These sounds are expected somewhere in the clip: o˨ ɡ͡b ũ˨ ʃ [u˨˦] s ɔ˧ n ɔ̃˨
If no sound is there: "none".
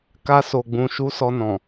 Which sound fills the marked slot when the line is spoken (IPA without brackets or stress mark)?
u˨˦